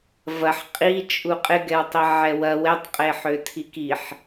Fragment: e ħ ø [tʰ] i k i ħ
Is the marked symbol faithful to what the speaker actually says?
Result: yes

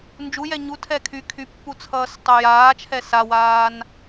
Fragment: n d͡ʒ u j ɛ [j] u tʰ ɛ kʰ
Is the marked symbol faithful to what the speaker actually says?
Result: no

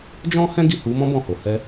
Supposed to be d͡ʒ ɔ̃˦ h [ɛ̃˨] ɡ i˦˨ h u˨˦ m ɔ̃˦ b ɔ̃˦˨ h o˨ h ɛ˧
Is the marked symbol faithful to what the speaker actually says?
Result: no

